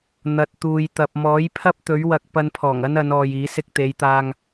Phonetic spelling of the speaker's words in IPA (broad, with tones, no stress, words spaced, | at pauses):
n̪ɐ˨t̚ t̪uː˨jt̪ɐ˨p̚ mɔː˨˥jpʰɐ˥p̚t̪ɵ˨˥ɥ wɐ˧k̚ pɐ˧npʰɔː˨˩ŋɐ˥n ɐ˨˧nɔː˨j iː˨˥ sɪ˧k̚t̪e˨˧jt̪aː˧ŋ